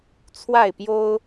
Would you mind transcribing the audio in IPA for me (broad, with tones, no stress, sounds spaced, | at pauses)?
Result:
t͡sʰ w a˥˨ ɪ̯ p j o˦ ʊ̯